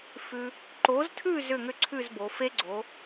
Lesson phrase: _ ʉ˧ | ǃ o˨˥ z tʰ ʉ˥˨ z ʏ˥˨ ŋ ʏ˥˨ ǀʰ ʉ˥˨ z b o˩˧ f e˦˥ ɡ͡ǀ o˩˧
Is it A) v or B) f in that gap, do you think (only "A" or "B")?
B